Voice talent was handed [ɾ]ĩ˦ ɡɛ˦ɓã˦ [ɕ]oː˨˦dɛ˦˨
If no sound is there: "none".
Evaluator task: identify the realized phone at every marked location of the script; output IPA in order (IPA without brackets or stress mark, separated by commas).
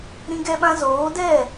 ɾ, z